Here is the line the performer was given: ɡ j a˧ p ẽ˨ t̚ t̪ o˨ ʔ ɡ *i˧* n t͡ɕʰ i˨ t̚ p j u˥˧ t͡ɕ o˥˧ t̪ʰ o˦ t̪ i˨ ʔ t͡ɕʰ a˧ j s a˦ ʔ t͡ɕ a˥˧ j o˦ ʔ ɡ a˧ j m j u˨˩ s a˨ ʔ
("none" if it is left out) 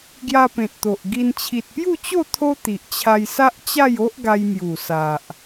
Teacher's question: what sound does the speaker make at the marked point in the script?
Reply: i˧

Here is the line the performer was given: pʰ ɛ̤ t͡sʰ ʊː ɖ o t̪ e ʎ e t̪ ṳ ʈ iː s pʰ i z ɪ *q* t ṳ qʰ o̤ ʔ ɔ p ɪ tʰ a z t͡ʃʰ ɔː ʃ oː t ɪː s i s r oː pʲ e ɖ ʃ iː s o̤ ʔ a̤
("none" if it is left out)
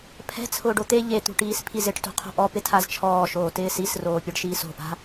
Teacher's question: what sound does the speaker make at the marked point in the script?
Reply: ʈ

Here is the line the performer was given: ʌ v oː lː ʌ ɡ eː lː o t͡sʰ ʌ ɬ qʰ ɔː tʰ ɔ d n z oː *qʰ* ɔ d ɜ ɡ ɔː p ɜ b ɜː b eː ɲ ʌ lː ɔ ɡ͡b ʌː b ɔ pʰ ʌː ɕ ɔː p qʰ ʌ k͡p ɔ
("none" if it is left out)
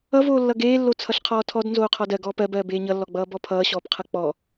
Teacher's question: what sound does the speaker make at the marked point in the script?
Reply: qʰ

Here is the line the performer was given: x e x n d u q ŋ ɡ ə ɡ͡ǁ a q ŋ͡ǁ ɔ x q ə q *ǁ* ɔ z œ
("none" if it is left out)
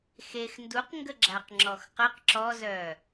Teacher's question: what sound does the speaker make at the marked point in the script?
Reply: ǁ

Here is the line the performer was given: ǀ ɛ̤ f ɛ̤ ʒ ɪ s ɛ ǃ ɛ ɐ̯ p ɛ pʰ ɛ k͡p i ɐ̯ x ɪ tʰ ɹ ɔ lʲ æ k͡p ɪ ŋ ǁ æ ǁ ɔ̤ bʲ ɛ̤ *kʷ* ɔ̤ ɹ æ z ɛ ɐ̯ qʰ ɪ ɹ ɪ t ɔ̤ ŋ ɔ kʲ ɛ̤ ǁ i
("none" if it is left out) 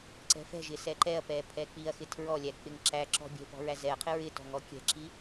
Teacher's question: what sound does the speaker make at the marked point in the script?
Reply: p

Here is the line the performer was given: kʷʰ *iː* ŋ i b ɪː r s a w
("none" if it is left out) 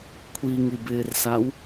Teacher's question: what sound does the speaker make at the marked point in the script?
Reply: i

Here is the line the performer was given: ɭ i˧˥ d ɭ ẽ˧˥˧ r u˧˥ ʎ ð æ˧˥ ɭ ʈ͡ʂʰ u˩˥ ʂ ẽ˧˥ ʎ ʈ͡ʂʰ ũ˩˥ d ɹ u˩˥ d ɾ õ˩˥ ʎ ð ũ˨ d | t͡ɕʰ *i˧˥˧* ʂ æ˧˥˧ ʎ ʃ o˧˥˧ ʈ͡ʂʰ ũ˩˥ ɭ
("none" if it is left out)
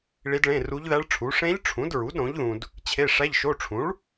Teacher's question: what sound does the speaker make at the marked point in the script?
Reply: e˧˥˧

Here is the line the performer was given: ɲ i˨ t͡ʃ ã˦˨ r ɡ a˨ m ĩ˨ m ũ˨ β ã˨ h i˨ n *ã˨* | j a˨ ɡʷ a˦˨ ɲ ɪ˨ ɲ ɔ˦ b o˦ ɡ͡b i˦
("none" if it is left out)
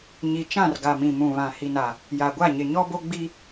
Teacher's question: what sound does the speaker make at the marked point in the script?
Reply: a˨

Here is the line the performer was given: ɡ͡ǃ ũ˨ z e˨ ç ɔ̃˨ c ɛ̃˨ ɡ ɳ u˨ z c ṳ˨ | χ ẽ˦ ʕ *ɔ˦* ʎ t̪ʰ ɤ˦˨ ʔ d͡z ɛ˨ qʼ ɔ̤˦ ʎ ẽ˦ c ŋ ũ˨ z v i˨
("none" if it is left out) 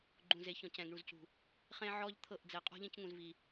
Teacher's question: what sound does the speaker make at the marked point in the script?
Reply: ɔ˦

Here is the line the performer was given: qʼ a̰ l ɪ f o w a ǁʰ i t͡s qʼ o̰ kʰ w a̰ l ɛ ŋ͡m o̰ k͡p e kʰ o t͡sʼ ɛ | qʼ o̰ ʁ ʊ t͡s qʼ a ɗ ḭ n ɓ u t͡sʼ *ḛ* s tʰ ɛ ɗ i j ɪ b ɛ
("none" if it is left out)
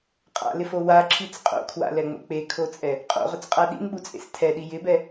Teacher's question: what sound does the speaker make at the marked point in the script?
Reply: ḛ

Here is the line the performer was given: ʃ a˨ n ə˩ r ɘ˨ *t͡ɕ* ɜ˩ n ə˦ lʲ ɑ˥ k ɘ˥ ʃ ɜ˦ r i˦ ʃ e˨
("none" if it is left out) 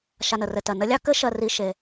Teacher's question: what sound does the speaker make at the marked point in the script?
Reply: t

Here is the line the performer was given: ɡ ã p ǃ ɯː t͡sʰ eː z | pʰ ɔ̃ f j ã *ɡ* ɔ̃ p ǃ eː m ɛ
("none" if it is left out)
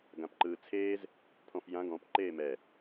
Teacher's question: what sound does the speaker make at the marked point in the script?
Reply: ɡ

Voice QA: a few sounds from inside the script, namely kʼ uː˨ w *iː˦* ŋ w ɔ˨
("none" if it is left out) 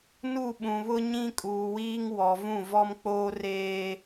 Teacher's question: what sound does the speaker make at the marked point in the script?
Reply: iː˦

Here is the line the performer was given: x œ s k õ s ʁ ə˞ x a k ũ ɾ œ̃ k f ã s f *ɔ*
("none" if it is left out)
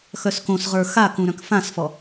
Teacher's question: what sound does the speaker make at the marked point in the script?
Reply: ɔ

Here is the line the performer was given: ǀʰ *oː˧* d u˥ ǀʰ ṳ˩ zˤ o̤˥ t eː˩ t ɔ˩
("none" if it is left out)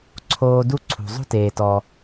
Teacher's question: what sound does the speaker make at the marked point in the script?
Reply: oː˧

